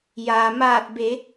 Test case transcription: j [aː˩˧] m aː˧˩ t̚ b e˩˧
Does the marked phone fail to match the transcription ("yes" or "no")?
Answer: yes